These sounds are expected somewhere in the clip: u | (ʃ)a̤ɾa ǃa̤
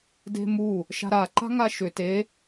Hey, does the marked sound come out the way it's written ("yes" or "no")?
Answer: yes